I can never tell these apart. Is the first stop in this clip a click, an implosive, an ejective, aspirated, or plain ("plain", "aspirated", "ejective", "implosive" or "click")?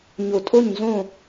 ejective